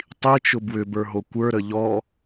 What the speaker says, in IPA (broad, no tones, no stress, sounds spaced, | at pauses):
tˤ i t͡ʃ ʊ b w ʏ b ə˞ ɦ o kʷ ə˞ ɾ ə ʎ ɔ